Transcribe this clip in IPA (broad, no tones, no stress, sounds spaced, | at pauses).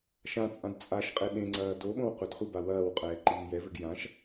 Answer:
ʃ ã t͡sʼ ã d t͡sʼ a ʃ qʼ e ɗ ẽ ŋ͡ǀ ɐː d o ɓ õ w qʷ ɘ d χʷ ɨ b a w ɐː w qʼ ɛː ǃ iː j ɛ v ɘ ɡ j ã ʃ